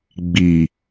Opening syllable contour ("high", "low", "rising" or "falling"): low